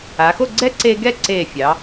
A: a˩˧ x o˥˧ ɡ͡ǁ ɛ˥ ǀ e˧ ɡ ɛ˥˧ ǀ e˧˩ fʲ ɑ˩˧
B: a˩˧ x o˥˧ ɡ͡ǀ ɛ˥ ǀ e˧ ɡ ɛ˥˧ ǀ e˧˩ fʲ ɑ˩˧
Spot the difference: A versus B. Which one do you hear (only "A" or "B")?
B